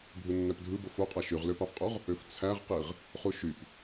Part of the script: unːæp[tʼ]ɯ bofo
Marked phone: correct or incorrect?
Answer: incorrect